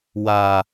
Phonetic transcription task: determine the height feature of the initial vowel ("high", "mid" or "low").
low